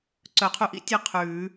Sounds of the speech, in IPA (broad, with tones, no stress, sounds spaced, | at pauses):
ǀ œ˨˩˦ qʰ u˨˦ ʔ ḭ˥ tʲ e˥˧ qʰ ʉː˨˩˦